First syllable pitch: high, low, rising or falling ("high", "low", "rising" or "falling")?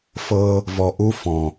high